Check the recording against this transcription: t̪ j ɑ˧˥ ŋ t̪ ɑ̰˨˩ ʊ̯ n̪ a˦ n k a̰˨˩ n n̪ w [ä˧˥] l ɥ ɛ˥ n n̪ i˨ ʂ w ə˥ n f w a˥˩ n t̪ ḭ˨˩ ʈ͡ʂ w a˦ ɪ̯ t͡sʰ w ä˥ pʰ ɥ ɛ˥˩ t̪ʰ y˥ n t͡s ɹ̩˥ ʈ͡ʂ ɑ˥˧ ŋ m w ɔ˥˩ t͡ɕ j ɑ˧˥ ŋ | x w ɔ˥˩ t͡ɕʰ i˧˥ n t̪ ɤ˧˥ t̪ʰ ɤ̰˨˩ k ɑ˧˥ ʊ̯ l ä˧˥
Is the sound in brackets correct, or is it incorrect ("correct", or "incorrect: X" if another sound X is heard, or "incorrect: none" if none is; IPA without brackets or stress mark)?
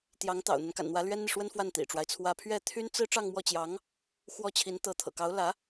correct